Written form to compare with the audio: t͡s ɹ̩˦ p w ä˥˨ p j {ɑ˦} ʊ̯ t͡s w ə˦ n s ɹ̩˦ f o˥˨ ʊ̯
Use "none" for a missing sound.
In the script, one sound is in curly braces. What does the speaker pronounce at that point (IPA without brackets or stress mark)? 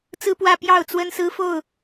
ɑ˥˨